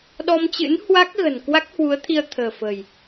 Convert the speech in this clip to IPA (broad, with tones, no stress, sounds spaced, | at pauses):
ɗ ɔ˧ m t͡ɕ ɨ̰˧˥ n h w a˦˥ k̚ ɣ ə̤˨˩ n k w a˦˥ k̚ h w u˨˦ ə̯ t̪ʰ i˧ ə̯ t̪ʰ ə̤ː˨˩ f ə̤˨˩ j